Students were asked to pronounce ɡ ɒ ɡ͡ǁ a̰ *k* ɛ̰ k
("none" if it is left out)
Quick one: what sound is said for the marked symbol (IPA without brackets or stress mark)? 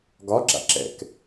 ǁ